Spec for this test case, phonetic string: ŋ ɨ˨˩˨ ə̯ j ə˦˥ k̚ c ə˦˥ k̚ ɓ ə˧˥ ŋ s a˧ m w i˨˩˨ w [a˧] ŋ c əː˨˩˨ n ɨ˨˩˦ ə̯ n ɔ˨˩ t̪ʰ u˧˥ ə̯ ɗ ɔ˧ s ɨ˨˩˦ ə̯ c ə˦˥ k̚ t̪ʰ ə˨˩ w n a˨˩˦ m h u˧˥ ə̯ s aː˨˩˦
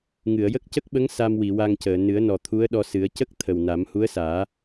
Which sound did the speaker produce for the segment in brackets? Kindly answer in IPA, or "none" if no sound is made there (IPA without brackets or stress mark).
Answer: a˧